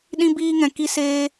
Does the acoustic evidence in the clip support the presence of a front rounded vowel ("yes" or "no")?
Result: no